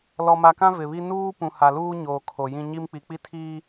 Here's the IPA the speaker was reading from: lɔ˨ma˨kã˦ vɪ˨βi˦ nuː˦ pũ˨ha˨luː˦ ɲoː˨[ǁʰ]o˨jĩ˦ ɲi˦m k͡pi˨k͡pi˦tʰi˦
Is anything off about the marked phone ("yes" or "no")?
yes